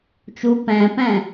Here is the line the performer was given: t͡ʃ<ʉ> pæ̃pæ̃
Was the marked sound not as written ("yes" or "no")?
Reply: yes